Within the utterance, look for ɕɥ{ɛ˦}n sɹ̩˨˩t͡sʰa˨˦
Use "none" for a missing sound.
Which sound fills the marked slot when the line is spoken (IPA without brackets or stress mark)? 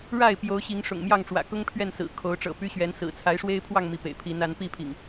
ɛ˨˦